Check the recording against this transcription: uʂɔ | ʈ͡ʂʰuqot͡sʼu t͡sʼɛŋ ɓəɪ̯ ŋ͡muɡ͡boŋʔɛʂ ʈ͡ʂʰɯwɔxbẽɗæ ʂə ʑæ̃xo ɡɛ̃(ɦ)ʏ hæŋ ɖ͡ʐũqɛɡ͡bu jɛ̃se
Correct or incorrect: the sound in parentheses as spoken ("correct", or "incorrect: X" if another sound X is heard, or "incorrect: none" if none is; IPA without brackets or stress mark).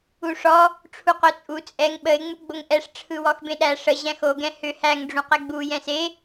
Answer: incorrect: h